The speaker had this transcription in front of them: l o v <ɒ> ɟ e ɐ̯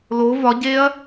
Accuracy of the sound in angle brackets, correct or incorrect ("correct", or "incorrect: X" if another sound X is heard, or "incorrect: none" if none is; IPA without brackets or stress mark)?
correct